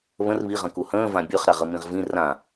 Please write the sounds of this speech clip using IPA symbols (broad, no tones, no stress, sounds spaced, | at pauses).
β ə̃ r β i ʁ ə̃ k u h ə̃ː v ã bʲ ɵ χ ɾ a ʁ ə m ĩ ʁ v ĩ r ã